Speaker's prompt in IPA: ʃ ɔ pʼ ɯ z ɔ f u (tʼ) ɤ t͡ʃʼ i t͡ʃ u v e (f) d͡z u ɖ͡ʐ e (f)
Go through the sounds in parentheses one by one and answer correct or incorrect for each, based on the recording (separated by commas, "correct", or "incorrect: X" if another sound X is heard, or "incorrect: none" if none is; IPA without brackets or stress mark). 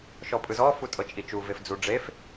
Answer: correct, correct, correct